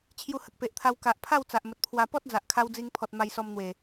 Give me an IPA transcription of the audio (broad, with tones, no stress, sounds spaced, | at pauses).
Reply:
t͡ɕʰ j u˧ h ə˨ k̚ p e˨ ʔ t̪ʰ a˧ w k a˨ ʔ pʰ a˥˧ w t͡s a˨ ʔ m ə˨ t̚ pʰ w a˧ p ɔ˦ t̚ d͡z a˨ ʔ kʰ a˧ w d͡z i˧ ŋ pʰ ɔ˨ t̚ m a˧ j s ɔ˧ m n̪ w e˨˩